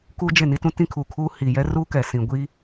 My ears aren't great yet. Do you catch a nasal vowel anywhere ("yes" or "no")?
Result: yes